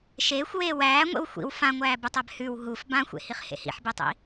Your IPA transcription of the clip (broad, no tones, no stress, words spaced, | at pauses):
ʃeːxʷweː wæːŋʷḛw xʷḭw fãŋʷæːbutˤæb hʉw ɦuf bãxʷḛhiχ hḛhḭħbetˤḭ